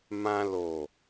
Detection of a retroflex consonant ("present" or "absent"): absent